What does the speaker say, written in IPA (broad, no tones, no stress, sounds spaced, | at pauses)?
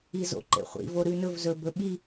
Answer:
i z o̰ ǃ ḛ χʷ ḭ v o ɾ ʉ n ɵ v z ɵ b ɵ ɓ i